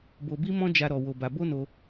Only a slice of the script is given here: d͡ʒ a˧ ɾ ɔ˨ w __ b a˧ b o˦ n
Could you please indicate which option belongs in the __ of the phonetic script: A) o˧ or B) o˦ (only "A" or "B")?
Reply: A